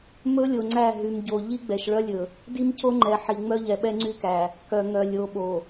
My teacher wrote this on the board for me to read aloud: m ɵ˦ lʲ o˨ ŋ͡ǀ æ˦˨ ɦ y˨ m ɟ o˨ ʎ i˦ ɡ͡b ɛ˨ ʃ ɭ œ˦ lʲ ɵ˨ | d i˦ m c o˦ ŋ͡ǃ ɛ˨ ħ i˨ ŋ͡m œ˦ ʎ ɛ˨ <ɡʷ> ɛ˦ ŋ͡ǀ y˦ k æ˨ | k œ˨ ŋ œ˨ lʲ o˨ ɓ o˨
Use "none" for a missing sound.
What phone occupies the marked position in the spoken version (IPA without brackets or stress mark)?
ɓ